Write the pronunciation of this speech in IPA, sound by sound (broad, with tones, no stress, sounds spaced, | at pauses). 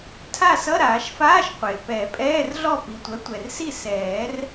tʰ a˥˨ s ʌ˧˥˧ ɾ aː˨˩˦ ʃ f aː˧˥˧ ʃ qʷ e˩ p ɛ˨˩˦ pʼ ɛː˧˥˧ r ɮ ɔ˥˨ p i˩ tʷ œ˩˥ tʷ ɛ˩ r s i˥˨ s ɛː˨˩˦ r